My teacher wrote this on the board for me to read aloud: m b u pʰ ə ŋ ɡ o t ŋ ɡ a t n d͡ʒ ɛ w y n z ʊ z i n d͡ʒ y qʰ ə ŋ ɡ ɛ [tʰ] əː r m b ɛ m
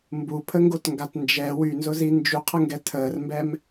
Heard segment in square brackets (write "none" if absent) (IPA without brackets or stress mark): tʰ